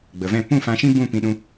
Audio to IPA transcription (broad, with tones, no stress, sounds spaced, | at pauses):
ɡ͡b ə˨ v ɛ̃˦˨ p ũ˦˨ f ã˧ ʃ ĩ˦ b ũ˦˨ p ĩ˧ ɗ ũ˧